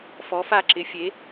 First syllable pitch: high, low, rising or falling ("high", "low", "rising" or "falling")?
rising